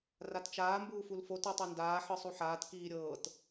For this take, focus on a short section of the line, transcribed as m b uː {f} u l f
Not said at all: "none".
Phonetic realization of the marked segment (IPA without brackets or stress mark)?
f